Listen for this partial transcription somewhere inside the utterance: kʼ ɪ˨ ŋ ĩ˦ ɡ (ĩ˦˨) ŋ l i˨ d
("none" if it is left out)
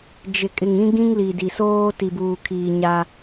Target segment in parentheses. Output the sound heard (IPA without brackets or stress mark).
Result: ĩ˦